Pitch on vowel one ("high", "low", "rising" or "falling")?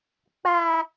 high